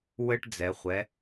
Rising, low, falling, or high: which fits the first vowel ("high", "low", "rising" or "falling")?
high